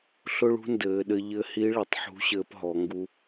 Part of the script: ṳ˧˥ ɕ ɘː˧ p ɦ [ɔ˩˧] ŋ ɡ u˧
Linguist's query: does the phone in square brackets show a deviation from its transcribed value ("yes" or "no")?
no